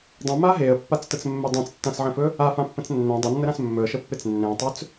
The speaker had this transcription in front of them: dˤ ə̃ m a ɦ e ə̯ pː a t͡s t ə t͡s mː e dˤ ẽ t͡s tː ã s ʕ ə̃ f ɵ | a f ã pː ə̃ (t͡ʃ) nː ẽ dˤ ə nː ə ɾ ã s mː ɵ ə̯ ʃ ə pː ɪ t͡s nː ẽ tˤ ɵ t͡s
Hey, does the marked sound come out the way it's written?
no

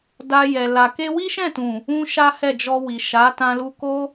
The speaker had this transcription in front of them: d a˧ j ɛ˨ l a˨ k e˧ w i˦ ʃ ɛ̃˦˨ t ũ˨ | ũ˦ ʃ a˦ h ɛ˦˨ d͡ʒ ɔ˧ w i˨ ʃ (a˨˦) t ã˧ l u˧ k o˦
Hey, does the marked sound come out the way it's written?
yes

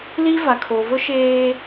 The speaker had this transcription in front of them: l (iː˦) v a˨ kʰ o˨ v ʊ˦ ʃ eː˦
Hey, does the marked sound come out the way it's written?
no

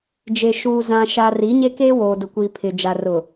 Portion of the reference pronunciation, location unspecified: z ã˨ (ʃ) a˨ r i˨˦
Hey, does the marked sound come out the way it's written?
yes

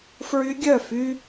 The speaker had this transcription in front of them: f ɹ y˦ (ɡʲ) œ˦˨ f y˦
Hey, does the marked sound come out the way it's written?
yes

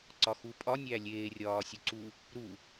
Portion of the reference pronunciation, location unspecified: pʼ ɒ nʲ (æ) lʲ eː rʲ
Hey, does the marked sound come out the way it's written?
yes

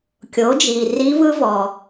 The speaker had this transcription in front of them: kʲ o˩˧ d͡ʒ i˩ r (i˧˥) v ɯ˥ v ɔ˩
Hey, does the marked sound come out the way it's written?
yes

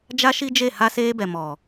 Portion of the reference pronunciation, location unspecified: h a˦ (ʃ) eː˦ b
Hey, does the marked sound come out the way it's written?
no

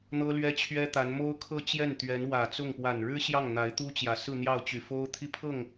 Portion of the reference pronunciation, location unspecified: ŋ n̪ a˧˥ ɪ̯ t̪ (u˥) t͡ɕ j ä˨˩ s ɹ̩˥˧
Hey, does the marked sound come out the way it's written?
yes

